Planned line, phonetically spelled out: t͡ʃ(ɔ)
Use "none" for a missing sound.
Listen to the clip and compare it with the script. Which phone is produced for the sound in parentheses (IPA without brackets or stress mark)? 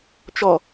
ɔ